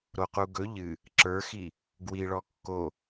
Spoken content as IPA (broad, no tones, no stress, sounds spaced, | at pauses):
ɾ o q u ɡ ɵ ʎ ɨ | ǁ ə˞ x i | ɡ w i ɭ ɔ kː o